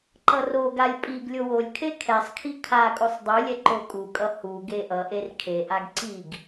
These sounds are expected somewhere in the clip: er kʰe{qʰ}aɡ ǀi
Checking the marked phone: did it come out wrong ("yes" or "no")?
yes